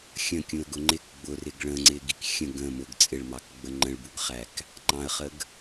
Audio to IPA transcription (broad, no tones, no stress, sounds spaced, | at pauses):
xʲ ə̃ kʲ ũ ə̯ ɡ ʊ ŋ͡ǃ ɪ k ɡ͡b ʊ r ɪ ɡ ɭ ə̃ ŋ͡ǀ ɪ ɡ i k xʲ ə̃ ɡ ə̃ m ʊ ɡ t͡sʼ ɪ ɭ m ɑ k ɡ͡b ə ŋ͡ǃ ə̃ ɭ b u ɡ χ æ k | ŋ͡ǃ ɑ̃ ə̯ χ ə ɡ